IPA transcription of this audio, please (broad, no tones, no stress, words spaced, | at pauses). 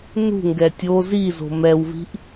nṳŋɡɛ tʲo zizo̤ mɛwvi̤ʔ